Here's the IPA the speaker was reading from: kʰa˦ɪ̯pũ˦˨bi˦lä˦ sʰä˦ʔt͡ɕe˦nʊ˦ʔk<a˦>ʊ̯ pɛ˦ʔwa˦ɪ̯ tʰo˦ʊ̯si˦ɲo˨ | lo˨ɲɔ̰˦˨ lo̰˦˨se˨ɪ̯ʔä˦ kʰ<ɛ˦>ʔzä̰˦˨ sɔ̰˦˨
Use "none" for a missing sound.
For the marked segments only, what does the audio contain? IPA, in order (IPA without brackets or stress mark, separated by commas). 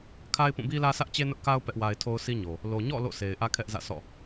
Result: a˦, ɛ˦